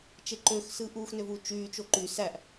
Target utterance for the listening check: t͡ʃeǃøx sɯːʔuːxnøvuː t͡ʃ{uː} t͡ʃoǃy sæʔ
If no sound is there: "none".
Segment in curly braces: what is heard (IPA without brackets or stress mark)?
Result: yː